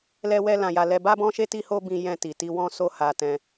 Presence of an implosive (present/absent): absent